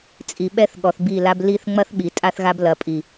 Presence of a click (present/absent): absent